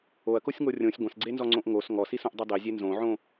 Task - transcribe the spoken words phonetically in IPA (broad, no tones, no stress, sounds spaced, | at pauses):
o ɐ̯ k o sʲ ŋ o rʲ õ sʲ ɡʷ ɐ̃ s ɡ͡ǀ e n z ɔ ŋ͡ǀ õ ʔ ŋ o s ŋ ɔ s i s õ ʔ dˤ e dˤ i zʲ e n z õ ʕ õ